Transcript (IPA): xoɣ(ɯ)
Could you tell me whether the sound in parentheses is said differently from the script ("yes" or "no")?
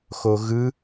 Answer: no